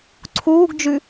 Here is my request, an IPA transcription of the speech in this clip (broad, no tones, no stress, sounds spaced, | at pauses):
ǀʰ uː ɡ d͡ʒ ʉ